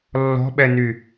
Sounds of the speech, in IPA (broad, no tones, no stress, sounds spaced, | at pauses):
lː ɔ̤ ɓ ɛ n y